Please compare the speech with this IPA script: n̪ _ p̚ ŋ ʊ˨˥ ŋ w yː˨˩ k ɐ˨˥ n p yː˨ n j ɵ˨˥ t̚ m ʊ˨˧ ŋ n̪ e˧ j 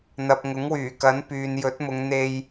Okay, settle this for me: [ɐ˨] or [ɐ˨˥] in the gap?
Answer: ɐ˨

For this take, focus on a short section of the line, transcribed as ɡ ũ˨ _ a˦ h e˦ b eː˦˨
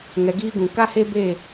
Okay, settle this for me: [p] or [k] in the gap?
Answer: k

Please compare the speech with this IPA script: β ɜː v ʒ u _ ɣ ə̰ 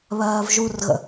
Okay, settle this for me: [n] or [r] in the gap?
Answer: r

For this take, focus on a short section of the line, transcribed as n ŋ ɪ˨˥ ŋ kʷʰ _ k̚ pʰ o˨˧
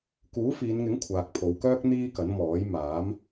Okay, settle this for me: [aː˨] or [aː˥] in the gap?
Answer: aː˨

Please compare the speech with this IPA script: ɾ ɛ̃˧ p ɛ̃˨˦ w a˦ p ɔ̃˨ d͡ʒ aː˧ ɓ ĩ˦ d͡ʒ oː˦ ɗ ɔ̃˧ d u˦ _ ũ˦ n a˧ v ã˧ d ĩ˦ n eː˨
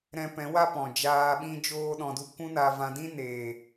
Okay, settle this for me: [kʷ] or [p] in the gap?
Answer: kʷ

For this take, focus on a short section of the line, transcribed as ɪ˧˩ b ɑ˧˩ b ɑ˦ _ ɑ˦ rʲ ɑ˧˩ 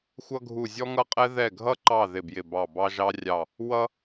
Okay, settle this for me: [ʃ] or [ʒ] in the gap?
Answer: ʒ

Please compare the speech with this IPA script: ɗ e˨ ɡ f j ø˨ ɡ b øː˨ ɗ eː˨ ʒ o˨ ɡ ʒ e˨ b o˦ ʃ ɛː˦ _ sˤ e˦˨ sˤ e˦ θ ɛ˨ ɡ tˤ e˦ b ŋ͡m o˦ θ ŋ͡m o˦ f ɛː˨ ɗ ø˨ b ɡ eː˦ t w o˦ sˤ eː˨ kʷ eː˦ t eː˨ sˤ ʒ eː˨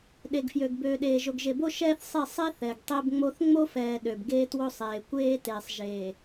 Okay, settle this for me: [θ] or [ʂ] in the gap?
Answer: θ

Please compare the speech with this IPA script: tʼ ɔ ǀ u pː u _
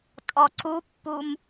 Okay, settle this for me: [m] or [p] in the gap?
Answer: m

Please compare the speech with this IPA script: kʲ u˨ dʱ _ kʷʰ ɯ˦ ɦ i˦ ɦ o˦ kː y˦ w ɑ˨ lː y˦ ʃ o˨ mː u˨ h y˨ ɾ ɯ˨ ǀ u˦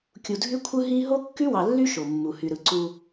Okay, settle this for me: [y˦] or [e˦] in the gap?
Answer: y˦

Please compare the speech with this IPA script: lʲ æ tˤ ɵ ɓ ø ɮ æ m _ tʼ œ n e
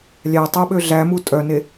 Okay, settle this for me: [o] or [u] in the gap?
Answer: u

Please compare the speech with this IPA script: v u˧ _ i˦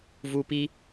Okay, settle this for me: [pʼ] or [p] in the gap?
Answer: p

